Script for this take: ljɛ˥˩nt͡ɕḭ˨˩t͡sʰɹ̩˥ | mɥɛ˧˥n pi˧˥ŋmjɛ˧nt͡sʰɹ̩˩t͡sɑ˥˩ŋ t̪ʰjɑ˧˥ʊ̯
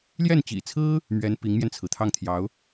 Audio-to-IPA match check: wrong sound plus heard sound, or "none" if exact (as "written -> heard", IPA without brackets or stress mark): t͡s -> t̪ʰ